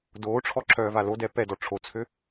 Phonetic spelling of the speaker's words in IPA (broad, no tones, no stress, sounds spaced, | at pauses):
d oː ʈ͡ʂʰ ɔ ǁʰ œː v a l o d ɛ p ɛ d ɔ ʈ͡ʂʰ o t͡sʰ ø